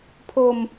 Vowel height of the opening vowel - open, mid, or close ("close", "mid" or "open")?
mid